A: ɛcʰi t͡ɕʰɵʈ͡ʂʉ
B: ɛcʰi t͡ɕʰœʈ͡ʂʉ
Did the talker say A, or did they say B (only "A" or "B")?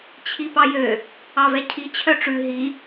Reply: B